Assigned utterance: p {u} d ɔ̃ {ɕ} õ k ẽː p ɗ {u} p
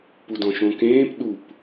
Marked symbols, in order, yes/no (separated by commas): yes, no, yes